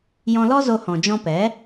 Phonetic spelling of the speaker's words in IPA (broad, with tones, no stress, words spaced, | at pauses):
jɔ̃˧lɔ˦ zo˧hɔ̃˨ d͡ʒɔ̃˧pɛ˨˦